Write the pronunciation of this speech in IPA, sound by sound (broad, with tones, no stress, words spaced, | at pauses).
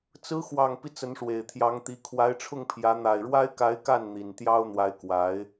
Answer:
t͡sɹ̩˧˥xwɑ˨˩ŋpi˦ t͡sə˧˥nʂwe˨˩ɪ̯t̪ʰjɑ˧˥ŋt̪i˧˥ kʰwa˧˥ɪ̯ʈ͡ʂʰʊ˥˩ŋpʰjä˧˥ n̪a˨˩ɪ̯ɻwa˥ɪ̯ka˧˥ɪ̯ka˥˩n n̪i˨˩nt̪jɑ˥ʊ̯n̪wa˧˥ɪ̯ kwa˧˥ɪ̯